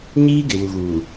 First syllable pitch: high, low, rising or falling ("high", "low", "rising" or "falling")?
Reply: high